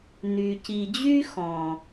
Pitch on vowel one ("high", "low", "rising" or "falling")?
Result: low